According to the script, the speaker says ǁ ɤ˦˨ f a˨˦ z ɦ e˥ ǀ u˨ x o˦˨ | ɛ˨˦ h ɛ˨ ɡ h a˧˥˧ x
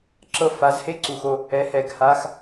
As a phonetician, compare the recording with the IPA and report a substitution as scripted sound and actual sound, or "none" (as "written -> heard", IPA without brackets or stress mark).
ɦ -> h